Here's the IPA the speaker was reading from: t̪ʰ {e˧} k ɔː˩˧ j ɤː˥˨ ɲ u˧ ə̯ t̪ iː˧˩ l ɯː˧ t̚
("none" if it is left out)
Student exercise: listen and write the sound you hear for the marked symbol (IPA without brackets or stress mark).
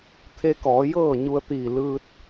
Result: e˧